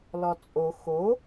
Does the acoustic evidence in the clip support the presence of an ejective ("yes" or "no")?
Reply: yes